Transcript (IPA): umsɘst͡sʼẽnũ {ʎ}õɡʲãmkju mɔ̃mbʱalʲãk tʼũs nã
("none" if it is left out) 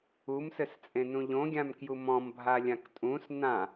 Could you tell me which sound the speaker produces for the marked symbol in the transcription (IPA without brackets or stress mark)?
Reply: ʎ